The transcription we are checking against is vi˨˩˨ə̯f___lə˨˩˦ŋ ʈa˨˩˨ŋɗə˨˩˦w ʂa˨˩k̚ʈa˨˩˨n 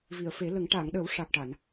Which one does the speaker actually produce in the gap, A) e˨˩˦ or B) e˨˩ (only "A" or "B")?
A